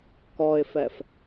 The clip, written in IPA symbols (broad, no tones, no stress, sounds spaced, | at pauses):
k ɔ ɪ̯ f ɛ f